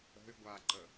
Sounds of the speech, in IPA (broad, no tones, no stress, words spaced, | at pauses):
ə̤y̯ɡʷaǃə